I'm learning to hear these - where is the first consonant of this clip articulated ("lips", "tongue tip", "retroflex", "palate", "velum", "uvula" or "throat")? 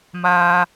lips